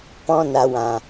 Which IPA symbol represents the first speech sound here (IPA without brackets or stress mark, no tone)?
p